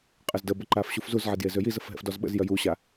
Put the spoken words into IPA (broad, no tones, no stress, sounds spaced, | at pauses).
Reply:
qʼ ə z d ə b ə ǃ a f ɕ u f z u z ʕ e d j e z ø j i z ə f ɦ ɛ̰ f d ɔ z ɓ ə̰ z j œ j u ɕ a